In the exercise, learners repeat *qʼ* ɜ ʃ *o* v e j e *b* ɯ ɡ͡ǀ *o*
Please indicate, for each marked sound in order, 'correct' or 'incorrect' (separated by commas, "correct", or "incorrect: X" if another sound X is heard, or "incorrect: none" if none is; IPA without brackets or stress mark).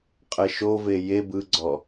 correct, correct, correct, incorrect: ɔ